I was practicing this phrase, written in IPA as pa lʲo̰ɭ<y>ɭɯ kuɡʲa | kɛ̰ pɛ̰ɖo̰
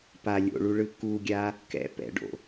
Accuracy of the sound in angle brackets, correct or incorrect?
incorrect: u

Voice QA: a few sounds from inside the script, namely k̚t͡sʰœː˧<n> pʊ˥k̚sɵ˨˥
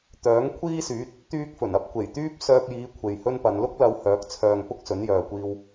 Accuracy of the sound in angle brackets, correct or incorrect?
incorrect: ŋ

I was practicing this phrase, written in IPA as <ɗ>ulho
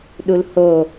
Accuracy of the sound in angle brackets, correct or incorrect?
correct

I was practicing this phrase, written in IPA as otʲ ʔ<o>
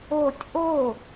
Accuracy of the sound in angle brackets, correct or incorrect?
correct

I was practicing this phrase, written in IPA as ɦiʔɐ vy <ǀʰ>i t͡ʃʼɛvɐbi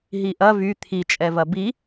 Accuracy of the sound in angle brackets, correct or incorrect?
incorrect: t̪ʰ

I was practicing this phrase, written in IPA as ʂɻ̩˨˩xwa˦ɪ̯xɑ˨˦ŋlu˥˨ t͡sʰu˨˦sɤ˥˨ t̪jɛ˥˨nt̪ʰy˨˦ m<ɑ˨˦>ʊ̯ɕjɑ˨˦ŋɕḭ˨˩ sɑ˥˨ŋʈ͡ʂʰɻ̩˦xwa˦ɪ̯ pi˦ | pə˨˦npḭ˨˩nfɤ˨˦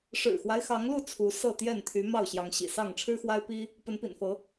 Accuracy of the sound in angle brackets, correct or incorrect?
incorrect: ɑ˥˨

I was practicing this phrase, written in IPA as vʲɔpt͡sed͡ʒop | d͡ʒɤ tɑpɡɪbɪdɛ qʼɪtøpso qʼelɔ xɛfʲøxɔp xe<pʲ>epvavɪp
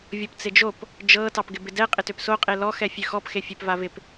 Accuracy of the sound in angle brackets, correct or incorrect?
incorrect: fʲ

